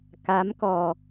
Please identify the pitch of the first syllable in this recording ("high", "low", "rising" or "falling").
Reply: rising